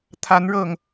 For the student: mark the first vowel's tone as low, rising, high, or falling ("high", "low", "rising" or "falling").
rising